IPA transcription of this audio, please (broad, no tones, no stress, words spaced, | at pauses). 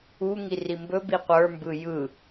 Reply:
u ŋirimbɵbi qʷə˞mbɯ jɯ